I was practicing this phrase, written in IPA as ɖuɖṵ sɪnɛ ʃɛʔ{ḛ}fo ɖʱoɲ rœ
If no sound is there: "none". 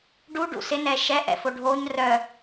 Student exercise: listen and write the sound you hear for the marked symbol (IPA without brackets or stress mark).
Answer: ɛ̰